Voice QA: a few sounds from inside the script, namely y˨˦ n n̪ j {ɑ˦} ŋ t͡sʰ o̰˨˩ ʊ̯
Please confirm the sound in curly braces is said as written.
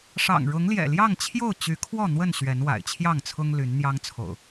yes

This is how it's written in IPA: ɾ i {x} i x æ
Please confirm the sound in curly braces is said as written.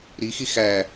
yes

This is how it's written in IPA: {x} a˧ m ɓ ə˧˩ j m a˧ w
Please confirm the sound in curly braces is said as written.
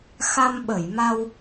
yes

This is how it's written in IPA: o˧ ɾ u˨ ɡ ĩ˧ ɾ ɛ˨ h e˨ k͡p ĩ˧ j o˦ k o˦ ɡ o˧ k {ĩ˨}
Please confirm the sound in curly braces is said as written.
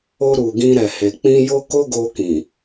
yes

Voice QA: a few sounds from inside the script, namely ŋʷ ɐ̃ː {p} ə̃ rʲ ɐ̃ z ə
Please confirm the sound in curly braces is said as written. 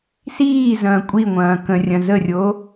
no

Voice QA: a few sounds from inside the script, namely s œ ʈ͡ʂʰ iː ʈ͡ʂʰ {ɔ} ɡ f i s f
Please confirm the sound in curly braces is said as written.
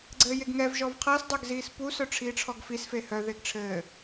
yes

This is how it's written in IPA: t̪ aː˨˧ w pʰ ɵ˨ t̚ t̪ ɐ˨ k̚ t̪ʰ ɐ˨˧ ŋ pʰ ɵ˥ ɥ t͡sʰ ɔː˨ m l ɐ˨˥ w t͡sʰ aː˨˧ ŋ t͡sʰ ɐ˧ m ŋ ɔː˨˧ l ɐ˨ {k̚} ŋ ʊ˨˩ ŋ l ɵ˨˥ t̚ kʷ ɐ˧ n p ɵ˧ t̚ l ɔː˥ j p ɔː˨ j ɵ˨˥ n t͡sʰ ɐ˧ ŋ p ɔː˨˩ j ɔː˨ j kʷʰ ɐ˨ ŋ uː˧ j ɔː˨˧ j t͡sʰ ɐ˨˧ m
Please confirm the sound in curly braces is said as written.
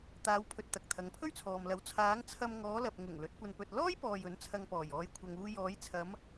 no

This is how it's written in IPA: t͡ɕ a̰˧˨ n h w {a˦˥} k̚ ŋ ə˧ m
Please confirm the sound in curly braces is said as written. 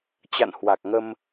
no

